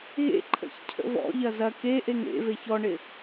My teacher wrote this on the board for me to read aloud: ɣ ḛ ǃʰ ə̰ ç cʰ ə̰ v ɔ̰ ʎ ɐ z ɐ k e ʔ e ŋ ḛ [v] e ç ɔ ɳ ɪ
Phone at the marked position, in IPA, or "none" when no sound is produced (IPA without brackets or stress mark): v